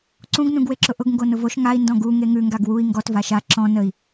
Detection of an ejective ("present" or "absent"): absent